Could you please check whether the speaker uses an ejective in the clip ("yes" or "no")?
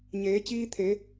no